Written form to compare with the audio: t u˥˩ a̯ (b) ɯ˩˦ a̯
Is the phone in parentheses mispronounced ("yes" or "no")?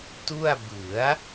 no